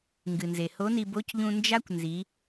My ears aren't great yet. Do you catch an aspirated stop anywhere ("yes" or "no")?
no